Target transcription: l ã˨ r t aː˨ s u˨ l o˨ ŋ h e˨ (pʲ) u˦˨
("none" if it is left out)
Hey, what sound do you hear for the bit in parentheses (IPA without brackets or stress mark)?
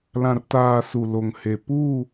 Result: p